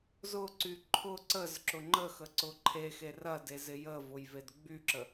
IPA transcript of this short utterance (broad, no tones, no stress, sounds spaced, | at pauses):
z ʊ ǀ y ǃʰ ʊ ǀ ə z ǁ ʊ ŋ͡ǃ ə x ə ǀ ʊ ǃʰ e x e r ɐ d e z ɪ j ə v ʊ j v e d ɡ͡b y ǁ ə